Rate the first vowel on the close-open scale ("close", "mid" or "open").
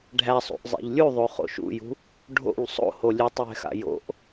open